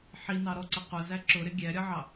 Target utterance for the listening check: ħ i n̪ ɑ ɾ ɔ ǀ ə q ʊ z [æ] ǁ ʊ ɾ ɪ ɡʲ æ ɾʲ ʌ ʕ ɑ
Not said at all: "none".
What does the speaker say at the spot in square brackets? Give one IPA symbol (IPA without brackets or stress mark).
æ